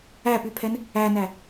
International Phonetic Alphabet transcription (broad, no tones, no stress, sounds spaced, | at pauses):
æ p y pʰ ɛ n | æ n æ